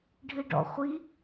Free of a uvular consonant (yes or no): no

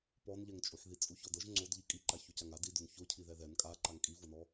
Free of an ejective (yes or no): no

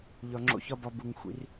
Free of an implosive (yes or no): yes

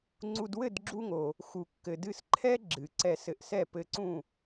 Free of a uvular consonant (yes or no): yes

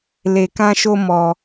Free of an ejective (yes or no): yes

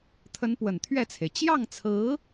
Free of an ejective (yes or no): yes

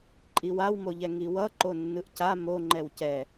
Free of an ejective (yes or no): no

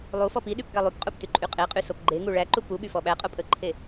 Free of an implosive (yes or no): no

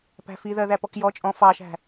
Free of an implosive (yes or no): yes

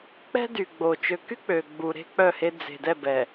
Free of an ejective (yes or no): yes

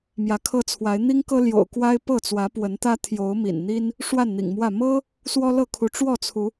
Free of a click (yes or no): yes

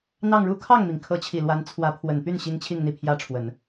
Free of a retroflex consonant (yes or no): no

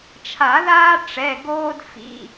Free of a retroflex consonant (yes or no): no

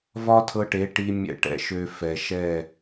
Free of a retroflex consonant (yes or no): no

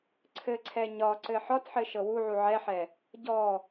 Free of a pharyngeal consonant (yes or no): no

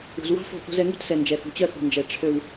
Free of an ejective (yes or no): yes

